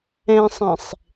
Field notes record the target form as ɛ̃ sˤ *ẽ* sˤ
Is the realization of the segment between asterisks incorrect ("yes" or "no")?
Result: no